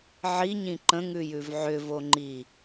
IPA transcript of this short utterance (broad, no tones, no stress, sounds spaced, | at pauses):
ʕ i ɲ ĩ ǃ ə̃ ŋ ʉ j ʉ v ʕ ʏ v o ŋ͡ǃ i